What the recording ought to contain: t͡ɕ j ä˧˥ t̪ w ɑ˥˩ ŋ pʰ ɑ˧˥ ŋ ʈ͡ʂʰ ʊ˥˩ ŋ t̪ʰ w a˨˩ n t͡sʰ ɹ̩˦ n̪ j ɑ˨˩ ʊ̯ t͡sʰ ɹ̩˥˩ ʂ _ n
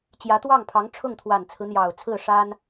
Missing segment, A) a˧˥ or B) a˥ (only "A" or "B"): B